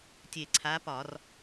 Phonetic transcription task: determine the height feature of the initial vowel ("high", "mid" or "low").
mid